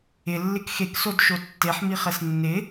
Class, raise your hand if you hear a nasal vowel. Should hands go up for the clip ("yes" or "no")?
no